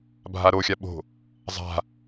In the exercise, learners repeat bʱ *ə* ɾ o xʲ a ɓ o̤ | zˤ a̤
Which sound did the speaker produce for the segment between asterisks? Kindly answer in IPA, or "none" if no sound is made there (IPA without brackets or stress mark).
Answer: a